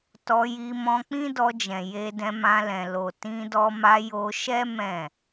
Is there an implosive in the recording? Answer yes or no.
no